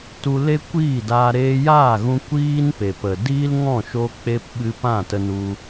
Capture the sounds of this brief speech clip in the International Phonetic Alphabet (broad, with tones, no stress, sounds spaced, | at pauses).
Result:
t u˧ l e˦ kʷ iː˦˨ d aː˧ ɾ eː˧ j aː˦˨ ɣ ũ˧ kʷ iː˦ n p e˨ p ə˨ d iː˦ l ŋ ɔ̃˦˨ ʃ o˧ k͡p e˧ p ɓ ɨ˧ p ã˦˨ t ə˧ n u˧